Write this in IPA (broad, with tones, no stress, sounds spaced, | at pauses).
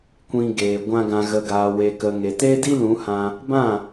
kʷ ĩ˧ ɡ eː˨ ɡʷ ã˦ ɡ ã˧ ɣ ə˧ ɡ aː˨ w e˨ k ə˨ ŋ e˨ t e˦ d i˦ l ũ˨˦ h ã˧ | b ã˦˨